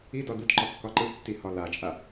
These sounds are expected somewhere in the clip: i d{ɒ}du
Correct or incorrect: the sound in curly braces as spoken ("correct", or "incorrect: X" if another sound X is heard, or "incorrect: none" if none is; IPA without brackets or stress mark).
correct